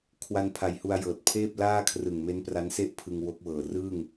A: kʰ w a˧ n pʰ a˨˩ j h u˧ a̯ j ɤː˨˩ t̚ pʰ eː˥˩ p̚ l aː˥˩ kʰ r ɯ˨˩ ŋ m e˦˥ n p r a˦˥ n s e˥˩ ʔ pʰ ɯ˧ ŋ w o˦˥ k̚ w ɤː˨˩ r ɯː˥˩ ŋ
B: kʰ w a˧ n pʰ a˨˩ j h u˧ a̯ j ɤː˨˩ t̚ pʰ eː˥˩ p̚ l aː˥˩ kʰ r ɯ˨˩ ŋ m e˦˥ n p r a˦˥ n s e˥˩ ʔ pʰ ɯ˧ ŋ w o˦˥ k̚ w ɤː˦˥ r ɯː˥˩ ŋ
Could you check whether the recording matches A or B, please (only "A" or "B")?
A